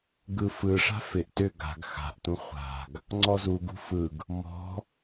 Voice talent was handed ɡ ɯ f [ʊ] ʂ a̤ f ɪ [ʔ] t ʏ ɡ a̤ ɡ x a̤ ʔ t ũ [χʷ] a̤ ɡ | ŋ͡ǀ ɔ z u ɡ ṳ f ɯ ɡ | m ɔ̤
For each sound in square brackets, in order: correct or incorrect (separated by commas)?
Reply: incorrect, correct, correct